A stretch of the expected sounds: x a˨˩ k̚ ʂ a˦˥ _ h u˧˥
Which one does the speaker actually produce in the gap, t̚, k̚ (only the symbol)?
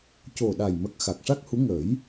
k̚